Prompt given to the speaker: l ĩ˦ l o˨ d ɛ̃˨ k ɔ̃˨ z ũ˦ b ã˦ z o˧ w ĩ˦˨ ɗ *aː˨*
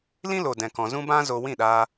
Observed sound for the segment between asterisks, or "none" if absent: aː˧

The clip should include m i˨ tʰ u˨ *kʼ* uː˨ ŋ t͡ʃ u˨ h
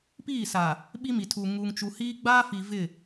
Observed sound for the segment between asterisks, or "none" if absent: ŋ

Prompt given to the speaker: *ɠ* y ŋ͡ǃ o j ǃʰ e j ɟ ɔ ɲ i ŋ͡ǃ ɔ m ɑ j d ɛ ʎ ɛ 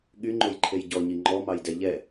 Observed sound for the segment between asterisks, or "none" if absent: ɠ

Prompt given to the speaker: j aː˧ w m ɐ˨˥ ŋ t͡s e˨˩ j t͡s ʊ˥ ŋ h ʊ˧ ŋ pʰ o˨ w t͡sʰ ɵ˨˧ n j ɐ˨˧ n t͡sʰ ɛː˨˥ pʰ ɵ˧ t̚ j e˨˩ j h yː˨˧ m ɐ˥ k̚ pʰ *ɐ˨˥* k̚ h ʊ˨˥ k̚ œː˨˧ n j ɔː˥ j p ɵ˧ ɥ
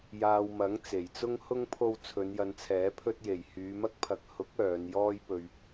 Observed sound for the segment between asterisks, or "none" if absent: ɐ˨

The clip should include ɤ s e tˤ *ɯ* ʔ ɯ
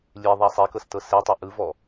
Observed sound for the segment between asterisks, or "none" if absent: ɯ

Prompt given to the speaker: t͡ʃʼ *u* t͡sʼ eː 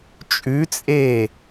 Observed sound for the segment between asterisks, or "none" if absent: ʉ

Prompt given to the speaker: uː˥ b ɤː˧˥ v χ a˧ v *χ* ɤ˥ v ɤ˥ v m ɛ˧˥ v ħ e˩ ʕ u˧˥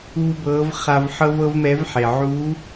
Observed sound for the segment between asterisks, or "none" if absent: ħ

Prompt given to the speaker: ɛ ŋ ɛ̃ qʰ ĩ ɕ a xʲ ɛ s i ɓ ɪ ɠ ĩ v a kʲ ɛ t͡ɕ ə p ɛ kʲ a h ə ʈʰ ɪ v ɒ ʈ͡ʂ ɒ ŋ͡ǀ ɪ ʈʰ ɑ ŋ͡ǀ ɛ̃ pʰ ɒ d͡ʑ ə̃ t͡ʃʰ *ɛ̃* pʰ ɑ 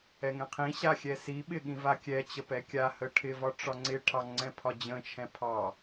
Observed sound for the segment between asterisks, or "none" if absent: ɛ̃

